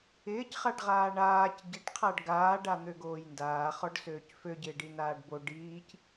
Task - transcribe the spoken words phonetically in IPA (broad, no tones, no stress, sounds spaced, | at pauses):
ɪː c χ a ɖ ʁ aː ɳ aː c ɟ ɪ ʈ qʰ a ɖ ɡ aː ɖ a n̪ ø ɡ oː j n d aː χ ɔ ɖ s øː c f ø ɟ ɪː ɖ i n aː ɖ b o ɖ iː c